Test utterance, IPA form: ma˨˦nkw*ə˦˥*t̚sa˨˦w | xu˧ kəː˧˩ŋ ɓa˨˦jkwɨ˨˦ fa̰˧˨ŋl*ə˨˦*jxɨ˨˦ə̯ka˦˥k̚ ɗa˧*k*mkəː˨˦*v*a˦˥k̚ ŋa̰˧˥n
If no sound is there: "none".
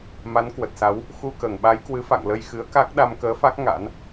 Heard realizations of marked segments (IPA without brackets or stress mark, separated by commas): ə˨˩, ə˧, none, f